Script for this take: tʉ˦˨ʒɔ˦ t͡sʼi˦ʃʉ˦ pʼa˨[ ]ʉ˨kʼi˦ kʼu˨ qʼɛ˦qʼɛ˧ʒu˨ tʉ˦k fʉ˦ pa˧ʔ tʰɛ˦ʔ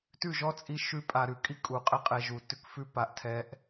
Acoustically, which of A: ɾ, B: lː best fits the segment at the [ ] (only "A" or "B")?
A